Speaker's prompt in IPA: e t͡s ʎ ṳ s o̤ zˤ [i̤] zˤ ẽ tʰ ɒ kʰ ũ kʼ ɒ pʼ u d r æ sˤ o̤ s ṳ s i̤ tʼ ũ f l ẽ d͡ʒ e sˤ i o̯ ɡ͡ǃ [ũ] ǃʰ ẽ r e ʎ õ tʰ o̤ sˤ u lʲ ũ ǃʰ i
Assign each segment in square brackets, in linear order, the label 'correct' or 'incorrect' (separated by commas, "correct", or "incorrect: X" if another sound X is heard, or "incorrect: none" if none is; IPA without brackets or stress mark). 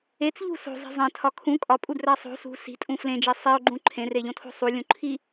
correct, correct